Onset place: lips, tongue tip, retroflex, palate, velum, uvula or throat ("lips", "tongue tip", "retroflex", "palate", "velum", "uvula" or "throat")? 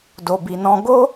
tongue tip